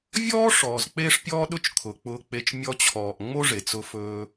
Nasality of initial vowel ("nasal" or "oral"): oral